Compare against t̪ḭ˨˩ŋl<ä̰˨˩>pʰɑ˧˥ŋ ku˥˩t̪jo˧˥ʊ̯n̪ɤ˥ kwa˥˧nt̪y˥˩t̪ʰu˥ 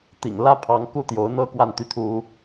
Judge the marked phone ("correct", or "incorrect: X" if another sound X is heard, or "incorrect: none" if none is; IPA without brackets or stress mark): incorrect: ä˥